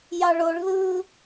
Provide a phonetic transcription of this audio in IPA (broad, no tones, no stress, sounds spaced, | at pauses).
j ɑ ɭ o ɭ ð ɯː